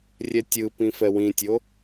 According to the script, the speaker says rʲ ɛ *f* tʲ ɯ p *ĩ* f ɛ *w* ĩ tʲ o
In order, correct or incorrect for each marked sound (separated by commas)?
incorrect, correct, correct